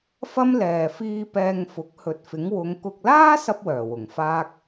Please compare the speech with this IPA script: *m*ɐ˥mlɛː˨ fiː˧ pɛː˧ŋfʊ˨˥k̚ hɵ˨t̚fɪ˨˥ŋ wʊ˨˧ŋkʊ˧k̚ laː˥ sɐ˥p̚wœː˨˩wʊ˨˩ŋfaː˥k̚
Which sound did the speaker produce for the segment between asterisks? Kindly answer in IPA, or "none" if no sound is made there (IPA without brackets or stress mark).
f